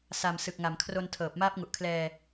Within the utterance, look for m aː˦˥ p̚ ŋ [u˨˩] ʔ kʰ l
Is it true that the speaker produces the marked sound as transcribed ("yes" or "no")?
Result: yes